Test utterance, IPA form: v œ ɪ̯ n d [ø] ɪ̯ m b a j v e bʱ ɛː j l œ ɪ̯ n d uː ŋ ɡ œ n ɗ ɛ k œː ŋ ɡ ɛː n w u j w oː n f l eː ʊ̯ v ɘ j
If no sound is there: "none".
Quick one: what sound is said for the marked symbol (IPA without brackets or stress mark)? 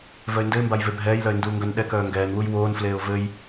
ɘ